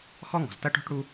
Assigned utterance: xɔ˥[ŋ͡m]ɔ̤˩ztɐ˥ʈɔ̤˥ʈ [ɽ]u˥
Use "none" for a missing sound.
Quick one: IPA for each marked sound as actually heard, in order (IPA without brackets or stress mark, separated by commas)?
ŋ, ɽ